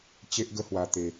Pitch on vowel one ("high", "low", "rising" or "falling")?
high